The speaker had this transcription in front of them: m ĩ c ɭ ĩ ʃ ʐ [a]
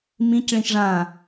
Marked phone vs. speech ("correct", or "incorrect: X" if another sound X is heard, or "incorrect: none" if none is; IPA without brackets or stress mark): incorrect: ã